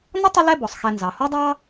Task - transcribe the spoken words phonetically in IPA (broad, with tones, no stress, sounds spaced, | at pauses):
n ə˥ tˤ ə˦ l ɛ˦ b ɔ˩ sˤ x ɛ˨ n z ɑ˩ h ɔ˥ dˤ ɑ˥